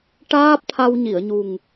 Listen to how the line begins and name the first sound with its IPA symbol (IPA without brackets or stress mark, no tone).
ʈ